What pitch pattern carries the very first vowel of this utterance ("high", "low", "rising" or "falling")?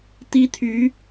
high